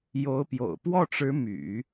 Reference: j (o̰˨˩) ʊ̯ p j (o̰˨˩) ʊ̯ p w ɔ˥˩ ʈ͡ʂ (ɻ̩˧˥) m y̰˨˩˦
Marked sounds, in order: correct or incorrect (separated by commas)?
incorrect, correct, correct